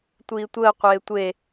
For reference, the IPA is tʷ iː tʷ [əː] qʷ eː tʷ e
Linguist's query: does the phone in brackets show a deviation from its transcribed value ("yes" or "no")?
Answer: no